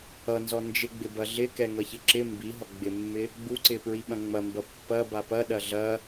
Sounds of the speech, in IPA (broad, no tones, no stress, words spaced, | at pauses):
ʌnzɔ nd͡ʒɪɡ͡bɪbɐ ɮɪkɛŋʌçɪ ǁɪ mbiɦɔ ɡ͡bɪmːɪ | ɡ͡buǀɪpɹiɓɐ̃ ŋ͡mɐmbɐ pːɐba pɐɗɐ ɮɐ